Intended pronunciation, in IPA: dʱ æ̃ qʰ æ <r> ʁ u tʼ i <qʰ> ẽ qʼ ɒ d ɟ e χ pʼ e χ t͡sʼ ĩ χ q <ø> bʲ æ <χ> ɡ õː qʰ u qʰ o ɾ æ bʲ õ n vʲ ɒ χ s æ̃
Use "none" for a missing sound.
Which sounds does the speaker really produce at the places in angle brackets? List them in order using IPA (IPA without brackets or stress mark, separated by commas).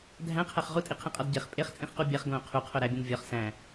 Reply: χ, qʰ, u, χ